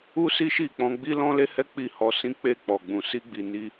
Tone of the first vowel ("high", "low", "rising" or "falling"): high